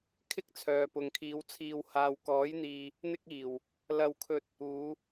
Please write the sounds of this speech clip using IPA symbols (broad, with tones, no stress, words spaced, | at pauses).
kʰɪ˥k̚ t͡sʰœː˨pʊ˨ŋkʰiː˨˧w t͡sʰiː˨whaː˨w kɔː˨˥jn̪iː˨ | n̪ɪ˥k̚iː˨˩w | lɐ˧wkʰɵ˧t̚ | uː˨˧